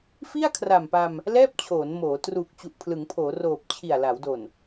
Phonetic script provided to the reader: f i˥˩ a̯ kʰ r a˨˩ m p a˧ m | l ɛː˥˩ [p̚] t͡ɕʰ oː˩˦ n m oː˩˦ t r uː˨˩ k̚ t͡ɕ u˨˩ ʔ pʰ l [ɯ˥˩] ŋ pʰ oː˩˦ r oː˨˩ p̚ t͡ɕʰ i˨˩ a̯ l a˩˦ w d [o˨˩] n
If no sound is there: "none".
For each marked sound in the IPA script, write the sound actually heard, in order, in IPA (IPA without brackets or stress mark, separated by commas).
p̚, ɯ˩˦, o˨˩